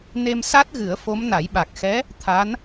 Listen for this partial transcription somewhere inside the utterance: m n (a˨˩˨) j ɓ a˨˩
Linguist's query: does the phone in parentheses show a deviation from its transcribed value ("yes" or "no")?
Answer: yes